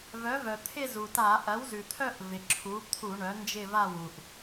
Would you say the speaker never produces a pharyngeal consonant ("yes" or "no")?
yes